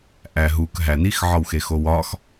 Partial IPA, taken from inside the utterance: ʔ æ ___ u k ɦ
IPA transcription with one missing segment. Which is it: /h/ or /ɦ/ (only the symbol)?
ɦ